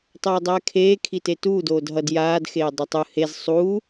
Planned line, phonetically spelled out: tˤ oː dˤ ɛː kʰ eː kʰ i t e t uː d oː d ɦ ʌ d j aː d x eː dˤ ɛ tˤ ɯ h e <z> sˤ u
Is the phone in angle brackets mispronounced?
no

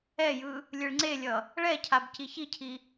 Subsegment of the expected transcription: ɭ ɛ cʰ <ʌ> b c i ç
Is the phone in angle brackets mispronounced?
yes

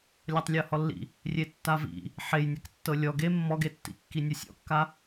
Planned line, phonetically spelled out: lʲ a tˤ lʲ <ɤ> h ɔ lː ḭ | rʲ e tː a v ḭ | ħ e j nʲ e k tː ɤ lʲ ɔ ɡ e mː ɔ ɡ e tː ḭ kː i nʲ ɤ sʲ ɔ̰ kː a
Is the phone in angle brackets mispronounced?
no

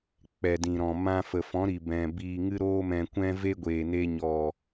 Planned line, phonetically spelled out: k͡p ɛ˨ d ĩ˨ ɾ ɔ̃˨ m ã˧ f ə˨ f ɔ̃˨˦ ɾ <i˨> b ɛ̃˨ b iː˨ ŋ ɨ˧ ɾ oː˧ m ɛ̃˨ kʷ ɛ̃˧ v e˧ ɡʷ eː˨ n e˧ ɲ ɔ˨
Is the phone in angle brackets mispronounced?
no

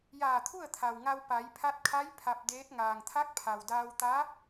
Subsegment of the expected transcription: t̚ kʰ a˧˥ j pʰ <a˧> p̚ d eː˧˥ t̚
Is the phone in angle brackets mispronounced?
no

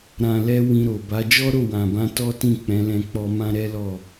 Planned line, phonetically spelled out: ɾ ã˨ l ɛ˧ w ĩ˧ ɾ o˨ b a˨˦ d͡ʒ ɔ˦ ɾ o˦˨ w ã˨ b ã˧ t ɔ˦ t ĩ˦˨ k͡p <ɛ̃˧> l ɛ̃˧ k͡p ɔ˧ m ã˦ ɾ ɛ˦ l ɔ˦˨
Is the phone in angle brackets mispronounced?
yes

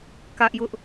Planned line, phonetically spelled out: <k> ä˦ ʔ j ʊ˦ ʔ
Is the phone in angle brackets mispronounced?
no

